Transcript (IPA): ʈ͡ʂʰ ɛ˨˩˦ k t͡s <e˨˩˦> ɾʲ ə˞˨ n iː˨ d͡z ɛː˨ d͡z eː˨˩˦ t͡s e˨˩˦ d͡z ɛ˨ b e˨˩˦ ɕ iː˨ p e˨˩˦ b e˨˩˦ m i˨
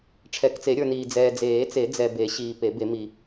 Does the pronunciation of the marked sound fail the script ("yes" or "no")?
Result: no